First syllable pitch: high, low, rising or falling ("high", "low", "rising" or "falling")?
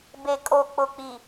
low